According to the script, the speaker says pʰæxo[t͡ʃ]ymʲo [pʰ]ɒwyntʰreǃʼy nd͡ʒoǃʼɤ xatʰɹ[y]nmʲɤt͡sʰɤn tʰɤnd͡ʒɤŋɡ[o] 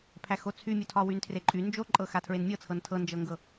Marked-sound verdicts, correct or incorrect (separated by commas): incorrect, incorrect, incorrect, incorrect